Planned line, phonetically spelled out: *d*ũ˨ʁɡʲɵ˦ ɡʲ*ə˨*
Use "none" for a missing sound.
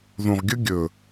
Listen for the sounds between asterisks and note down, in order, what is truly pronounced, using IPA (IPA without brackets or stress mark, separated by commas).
ð, ɵ˨